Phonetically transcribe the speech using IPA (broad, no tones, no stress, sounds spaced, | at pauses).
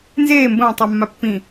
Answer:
n z eː m b ə̃ w ə̃ tˤ a mː a pː ĩ